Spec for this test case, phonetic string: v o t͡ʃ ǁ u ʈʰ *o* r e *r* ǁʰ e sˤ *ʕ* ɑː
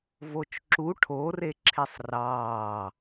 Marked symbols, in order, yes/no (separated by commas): yes, no, no